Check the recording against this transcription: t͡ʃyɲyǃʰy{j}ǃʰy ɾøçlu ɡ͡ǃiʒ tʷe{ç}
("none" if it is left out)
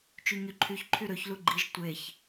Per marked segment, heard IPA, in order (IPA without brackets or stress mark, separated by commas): ç, ç